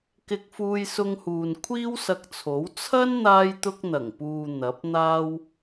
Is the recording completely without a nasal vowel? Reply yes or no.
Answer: yes